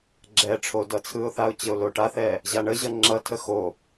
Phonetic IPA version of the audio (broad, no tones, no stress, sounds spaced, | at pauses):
ɡ͡ǁ ɛ ʈ͡ʂʰ o d ʌ t͡sʰ ɯ ʊ̯ θ a ʊ̯ t͡ɕ ə ʊ̯ l o ʈ a θ ɛ | ʑ a ɳ ə ʑ ʌ ŋ͡ǁ ʌ tʰ ə x o